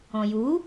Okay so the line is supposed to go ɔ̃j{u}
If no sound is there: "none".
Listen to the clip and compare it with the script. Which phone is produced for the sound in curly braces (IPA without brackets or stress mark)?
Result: u